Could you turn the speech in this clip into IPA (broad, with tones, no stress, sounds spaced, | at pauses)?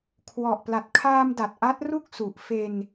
kʰ w ɔ˨˩ ʔ p l a˨˩ t̚ kʰ aː˧ m d a˨˩ t̚ ʔ a˦˥ t̚ r u˥˩ k̚ s u˨˩ ʔ f e˧ n